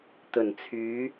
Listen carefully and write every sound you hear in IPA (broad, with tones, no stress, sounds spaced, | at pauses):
t̪ ɵ˨˩ n t͡sʰ yː˨˧